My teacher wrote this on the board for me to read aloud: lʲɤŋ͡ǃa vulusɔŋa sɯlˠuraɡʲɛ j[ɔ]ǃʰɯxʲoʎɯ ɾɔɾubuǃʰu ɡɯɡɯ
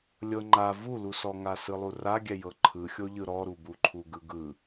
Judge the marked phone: incorrect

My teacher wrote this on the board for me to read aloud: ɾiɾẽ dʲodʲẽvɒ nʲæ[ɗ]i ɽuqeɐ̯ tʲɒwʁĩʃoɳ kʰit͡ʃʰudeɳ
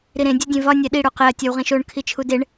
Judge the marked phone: correct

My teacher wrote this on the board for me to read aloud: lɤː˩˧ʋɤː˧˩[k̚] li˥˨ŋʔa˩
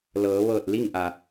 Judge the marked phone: incorrect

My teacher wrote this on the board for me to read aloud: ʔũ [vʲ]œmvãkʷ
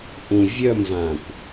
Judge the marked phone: correct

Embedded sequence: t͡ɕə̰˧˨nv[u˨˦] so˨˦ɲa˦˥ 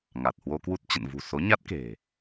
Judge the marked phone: incorrect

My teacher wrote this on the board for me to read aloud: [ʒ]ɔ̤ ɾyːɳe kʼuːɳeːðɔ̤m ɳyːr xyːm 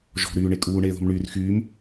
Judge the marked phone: correct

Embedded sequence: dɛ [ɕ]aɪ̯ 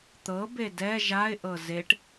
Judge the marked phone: incorrect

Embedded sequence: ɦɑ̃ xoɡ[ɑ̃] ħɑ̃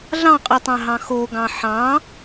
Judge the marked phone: correct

